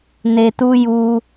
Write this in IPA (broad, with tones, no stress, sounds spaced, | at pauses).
n e˨ t u˧ j u˧